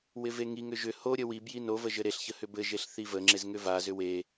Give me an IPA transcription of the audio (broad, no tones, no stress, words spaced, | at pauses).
wɪveŋiŋʏ ʒʏ hoɾʲə wi bjinovə ʒɘɾeɬçə hʏbɘʒeɬ θivəŋ͡ǁez ŋʏvazʏ we